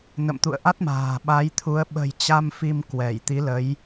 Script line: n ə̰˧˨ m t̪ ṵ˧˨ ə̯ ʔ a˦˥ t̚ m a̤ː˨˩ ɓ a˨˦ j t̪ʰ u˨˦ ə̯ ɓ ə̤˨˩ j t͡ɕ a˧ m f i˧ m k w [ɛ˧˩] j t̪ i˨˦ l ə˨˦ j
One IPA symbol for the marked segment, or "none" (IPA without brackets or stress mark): ɛ˧˩